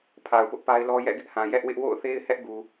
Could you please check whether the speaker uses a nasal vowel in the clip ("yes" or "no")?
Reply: yes